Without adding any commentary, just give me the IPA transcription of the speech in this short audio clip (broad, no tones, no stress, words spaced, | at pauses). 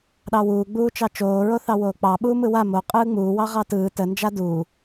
ɗɑwuːɡ͡buː t͡ʃɑt͡ʃoːɹoθɑ woːk͡pɑɓuː mɯwa mo qʼɯːŋ͡muːwɑ ʁɑtɯː tənd͡ʒa duː